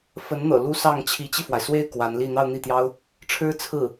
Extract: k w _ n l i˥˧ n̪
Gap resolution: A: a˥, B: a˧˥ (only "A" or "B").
B